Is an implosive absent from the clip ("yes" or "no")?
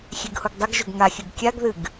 yes